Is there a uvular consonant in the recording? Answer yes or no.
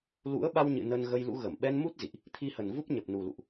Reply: no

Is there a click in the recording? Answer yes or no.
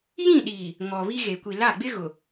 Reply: no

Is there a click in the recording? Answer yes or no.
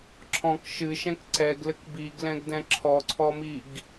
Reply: yes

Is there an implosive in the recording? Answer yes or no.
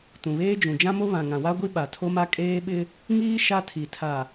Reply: yes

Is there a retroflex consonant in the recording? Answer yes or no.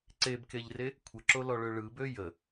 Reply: yes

